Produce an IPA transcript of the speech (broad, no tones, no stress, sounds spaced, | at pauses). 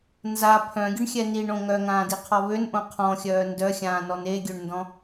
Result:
n z a pʰ œ̃ ɡʲ ə ɳ xʲ ɛ n i ɳ õ ŋ œ ŋ ãː d i qʰ ɔ β ø n ʔ õ qʰ ɔ̃ xʲ œː n d œ xʲ ãː n ɔ n e ɡʲ ø ɳ n d ɔ̃